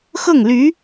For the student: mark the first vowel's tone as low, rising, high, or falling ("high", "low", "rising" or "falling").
falling